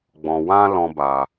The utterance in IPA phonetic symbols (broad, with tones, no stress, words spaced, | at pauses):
ɡ͡bɔ̃˨wã˧ lɔ̃˦ba˧